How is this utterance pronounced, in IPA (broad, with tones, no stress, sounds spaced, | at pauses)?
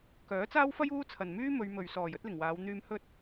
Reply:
k œː˨˥ t͡s aː˥ w f ɐ˥ j uː˥ t͡sʰ ɐ˨ n m yː˥ m ɵ˨˧ ɥ m ɵ˨ ɥ s ɔː˨˩ j ɵ˥ t̚ l ɪ˨˩ ŋ w aː˨˧ w n̪ yː˧ m h ɵ˥ t̚